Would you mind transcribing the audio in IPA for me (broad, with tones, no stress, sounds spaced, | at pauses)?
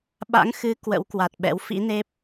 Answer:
ɓ a̰˧˥ ŋ x ɨ˨˦ k w ə̰˧˥ w k w a˨˩ t̚ ɓ ɛ̰˧˥ w f ḭ˧˥ n e˦˥ p̚